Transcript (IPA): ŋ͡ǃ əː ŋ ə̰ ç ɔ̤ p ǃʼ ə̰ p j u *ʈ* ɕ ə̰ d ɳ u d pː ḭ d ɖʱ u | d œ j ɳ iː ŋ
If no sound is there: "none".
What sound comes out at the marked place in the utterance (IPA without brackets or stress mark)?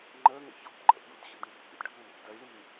d